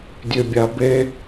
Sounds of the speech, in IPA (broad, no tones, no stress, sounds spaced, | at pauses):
dʲ ø bʲ a b e